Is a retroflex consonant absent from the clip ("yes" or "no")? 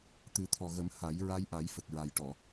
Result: no